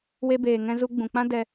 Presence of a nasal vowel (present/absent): present